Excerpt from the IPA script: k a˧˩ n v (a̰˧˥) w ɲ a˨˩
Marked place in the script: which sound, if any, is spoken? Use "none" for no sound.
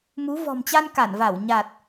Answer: a˧˩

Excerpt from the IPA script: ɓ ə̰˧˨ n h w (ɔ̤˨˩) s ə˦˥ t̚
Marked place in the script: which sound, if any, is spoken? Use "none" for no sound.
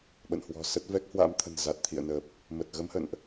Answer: ɔ̤˨˩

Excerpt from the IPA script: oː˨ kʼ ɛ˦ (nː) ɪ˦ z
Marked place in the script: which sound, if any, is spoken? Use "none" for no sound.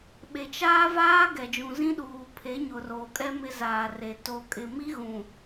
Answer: m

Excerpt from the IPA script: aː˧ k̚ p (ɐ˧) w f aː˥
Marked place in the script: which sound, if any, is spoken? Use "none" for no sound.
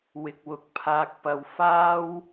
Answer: ɐ˧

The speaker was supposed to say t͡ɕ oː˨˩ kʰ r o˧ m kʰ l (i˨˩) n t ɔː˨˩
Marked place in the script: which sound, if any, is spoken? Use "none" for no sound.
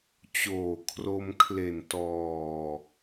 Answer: e˨˩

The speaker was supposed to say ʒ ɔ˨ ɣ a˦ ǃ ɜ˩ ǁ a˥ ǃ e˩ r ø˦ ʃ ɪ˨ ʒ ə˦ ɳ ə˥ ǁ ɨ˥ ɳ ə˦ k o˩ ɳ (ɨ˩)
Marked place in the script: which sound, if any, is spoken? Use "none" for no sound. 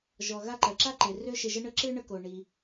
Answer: i˩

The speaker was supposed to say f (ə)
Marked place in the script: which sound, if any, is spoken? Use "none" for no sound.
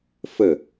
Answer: ə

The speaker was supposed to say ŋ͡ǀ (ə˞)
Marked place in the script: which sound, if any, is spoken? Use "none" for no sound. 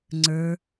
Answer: ə˞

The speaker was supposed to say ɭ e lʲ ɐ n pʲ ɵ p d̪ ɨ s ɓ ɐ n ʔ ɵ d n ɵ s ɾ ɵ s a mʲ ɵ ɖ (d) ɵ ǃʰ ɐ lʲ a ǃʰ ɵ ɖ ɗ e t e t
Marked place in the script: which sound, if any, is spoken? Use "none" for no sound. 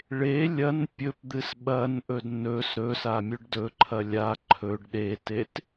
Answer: d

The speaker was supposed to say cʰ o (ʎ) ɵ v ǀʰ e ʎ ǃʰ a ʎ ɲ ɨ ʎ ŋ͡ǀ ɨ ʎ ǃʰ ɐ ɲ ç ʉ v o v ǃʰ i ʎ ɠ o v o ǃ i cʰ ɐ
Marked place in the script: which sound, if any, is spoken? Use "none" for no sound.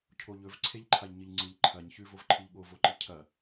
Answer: ʎ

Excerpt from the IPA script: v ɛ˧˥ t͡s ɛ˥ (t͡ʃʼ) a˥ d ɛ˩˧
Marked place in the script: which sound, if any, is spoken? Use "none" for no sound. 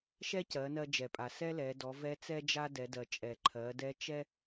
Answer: d͡ʒ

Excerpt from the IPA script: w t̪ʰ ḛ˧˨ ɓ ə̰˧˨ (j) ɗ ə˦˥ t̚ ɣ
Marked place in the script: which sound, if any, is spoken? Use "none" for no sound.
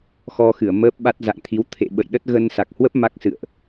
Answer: j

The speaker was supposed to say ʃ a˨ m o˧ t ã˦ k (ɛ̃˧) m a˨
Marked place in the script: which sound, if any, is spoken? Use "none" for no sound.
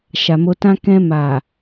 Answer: ɛ̃˧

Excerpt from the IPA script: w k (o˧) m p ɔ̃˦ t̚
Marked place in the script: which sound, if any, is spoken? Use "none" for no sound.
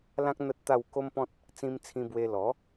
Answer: o˦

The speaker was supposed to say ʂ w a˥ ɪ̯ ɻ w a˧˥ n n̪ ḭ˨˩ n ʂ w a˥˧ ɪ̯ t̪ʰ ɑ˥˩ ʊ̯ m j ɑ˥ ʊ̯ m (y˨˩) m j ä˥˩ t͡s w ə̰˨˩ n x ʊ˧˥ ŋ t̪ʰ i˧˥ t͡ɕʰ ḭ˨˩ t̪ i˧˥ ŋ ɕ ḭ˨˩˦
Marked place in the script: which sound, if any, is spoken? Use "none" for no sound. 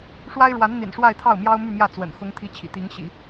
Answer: y˥˧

